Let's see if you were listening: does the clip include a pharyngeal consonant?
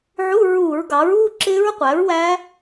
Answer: yes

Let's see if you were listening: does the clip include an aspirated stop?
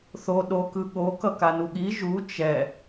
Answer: no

